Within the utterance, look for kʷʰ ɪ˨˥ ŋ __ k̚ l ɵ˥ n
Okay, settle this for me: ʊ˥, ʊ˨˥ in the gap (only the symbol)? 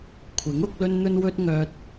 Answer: ʊ˨˥